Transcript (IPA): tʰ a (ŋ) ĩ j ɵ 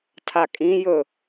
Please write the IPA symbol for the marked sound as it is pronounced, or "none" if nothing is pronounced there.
kʼ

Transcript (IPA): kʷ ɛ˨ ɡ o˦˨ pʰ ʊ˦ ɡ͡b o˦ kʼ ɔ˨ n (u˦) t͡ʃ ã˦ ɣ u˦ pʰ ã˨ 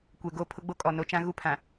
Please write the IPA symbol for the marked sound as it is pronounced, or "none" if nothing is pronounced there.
o˦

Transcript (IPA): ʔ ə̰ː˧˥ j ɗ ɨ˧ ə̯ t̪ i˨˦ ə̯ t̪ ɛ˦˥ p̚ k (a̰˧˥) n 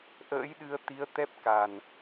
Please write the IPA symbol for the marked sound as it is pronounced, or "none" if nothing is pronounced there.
a˨˩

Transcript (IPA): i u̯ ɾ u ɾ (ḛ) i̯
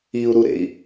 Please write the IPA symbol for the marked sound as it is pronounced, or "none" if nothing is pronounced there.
ḛ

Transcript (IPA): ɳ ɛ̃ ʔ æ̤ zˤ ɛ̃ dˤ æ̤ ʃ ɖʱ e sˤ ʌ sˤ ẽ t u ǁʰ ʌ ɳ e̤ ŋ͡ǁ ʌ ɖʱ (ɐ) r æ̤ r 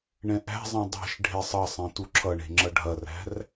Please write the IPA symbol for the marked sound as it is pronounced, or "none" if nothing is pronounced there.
ɐ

